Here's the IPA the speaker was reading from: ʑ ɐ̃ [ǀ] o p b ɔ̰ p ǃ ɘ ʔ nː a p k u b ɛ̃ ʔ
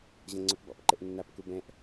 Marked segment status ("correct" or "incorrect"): incorrect